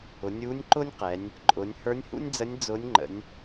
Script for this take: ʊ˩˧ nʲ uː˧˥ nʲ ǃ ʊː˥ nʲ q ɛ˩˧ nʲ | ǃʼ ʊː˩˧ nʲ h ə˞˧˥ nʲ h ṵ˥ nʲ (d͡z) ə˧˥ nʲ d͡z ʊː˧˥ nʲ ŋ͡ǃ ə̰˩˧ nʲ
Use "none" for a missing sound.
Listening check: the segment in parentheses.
d͡z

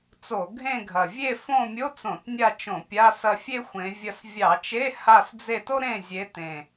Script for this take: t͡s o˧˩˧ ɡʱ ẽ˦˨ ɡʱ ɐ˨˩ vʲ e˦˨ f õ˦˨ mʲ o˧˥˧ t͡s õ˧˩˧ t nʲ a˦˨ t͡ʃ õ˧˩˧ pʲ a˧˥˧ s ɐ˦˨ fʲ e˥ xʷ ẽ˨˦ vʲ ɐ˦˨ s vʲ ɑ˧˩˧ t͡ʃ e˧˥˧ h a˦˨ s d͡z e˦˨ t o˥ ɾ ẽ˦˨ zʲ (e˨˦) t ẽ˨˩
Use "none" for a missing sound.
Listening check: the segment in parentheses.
e˨˦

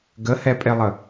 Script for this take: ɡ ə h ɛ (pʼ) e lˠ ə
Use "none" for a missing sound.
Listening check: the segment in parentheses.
pʼ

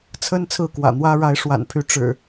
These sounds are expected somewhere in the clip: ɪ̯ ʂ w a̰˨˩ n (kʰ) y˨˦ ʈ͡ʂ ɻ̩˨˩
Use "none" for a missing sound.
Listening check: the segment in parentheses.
pʰ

